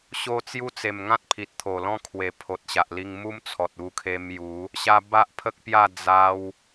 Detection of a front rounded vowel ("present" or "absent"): absent